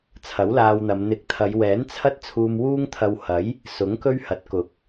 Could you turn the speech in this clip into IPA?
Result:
t͡sʰ ɐ˨˥ w l aː˧ w n̪ ɐ˨˧ m n̪ ɪ˨˥ k̚ t̪ʰ ɐ˨˧ j w ɛː˨˥ n t͡sʰ ɐ˥ t̚ t͡sʰ uː˧ m w uː˥ ŋ t̪ʰ ɐ˧ w h ɐ˨˥ j | s ʊ˨˥ ŋ k ɵ˥ ɥ h ɐ˨˥ t̚ k ʊ˨˥ k̚

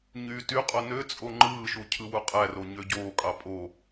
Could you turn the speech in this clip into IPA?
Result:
ɲ yː t y qʼ o n ø t͡sʼ o ŋ͡ǃ ɯː ʃ u cʰ ɯ w u qʼ æ r o ɲ ø ɟ oː kʼ ɑ pʼ o

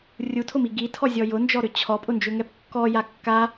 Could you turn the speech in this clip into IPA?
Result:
rʲ u tʰ ʊ m i ɡ i tʰ ɔ zʲ ɔ j ʊ n d͡ʒ ɔ ɾ ʏ t͡ɕʰ ɔ pʼ ʊ n d͡ʒ ʏ ŋ ɛ p kː ɔ j a kː a

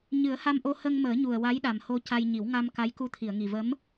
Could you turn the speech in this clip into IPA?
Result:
ɲ ɨ˨˩˦ ə̯ h a˧ m ʔ o˧ h ə˧ ŋ m əː˨˩˦ ɲ u˨˩ ə̯ w a˧˥ j ɗ a˨˩ m h o˧ c a˧ j ɲ i˨˩˦ w ŋ a˧ m k a˧˥ j k u˧ t̪ʰ i˨˩˨ ə̯ ŋ i˨˩ v ə˧˥ m

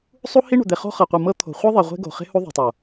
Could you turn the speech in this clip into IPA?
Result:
sˤ u˦ h i˦ ɳ o̤˨ d̪ e˨ χ o̤˦ χ ɤ˨ qʷ ɯ˨ m ɤ˦ t̪ʰ o̤˨ χʷ ɯ˦ ðˤ i˨ ʁʷ e̤˦ ɡ o̤˨ χ e̤˦ h u˦ ðˤ o̤˨ tˤ o˨

